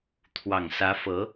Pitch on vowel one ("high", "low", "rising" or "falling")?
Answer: low